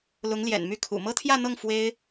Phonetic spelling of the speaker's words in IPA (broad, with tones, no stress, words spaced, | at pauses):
lʊ˧˥ŋljɛ̰˨˩nmy˥˩ kʰṵ˨˩ mɤ˥t̪ʰjä˥˧n̪ɤ˥˩ŋ fwe˥ɪ̯